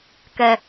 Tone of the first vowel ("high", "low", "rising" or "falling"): low